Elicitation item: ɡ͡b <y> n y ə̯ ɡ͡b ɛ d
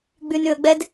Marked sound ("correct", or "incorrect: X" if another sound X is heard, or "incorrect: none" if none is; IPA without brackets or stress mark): correct